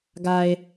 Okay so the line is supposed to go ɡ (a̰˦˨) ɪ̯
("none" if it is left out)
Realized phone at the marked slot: a˨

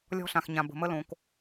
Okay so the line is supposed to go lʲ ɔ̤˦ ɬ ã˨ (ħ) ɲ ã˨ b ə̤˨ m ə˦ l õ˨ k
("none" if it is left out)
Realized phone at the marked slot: x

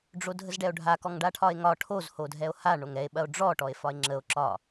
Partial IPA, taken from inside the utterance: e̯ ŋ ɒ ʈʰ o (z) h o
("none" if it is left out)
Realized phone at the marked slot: z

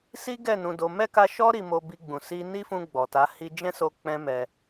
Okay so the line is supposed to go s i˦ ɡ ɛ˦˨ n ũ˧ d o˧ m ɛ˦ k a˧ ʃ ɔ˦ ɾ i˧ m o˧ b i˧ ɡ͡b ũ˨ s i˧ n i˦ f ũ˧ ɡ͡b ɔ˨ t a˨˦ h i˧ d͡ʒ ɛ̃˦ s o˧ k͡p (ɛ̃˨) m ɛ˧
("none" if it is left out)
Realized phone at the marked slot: ɛ̃˦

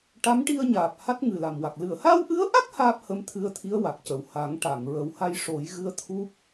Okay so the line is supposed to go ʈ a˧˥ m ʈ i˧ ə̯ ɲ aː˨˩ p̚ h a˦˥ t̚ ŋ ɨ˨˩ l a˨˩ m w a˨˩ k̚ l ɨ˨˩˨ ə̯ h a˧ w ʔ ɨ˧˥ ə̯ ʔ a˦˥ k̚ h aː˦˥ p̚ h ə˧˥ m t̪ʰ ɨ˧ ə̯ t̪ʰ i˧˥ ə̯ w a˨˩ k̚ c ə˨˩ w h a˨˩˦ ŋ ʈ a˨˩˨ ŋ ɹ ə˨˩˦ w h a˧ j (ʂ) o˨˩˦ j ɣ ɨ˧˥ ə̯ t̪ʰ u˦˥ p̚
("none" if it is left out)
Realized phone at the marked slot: ʂ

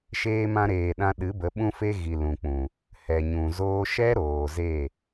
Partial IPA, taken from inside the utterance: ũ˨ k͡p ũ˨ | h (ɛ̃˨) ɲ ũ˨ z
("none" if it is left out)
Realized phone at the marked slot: ɛ˨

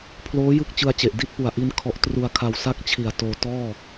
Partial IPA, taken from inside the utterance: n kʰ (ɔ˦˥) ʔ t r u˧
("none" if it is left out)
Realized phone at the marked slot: ɔ˥˩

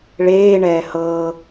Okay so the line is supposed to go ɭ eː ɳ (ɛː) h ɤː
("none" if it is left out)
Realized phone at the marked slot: ɛː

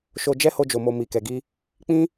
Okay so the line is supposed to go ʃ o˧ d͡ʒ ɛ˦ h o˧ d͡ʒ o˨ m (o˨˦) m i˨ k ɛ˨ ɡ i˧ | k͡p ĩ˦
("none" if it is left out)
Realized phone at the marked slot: o˨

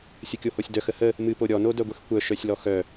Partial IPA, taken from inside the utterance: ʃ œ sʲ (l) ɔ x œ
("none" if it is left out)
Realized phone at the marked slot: l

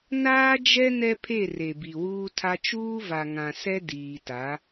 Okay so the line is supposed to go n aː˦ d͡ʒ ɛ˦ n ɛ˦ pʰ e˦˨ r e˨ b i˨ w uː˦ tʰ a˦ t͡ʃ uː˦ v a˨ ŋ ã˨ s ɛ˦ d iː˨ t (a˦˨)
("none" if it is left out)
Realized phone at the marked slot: a˨˦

